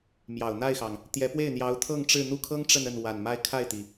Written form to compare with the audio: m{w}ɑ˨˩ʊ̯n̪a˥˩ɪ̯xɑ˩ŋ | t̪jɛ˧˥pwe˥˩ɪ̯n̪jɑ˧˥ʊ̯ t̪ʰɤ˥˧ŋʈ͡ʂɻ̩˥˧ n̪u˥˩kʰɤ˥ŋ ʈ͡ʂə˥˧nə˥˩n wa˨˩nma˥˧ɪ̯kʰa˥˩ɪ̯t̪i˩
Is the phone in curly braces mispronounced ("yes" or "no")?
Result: yes